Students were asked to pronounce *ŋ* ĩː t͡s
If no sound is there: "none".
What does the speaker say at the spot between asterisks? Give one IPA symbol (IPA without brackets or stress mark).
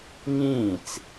ŋ